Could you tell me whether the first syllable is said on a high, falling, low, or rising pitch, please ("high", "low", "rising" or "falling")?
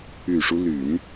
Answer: low